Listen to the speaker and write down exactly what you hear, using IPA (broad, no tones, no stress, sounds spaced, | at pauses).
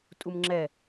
tʼ u m ŋ͡ǁ ɛ